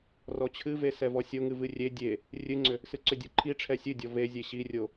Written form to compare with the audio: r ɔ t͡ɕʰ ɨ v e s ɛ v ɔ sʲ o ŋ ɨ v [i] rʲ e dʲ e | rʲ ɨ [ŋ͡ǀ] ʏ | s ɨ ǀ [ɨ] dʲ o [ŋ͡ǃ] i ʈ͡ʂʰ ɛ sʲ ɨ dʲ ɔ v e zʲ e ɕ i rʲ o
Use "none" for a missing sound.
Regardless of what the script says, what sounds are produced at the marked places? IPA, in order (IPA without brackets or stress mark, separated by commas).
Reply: ɨ, ŋ͡ǀ, ʏ, ǃʰ